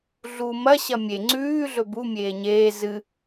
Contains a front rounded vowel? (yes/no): no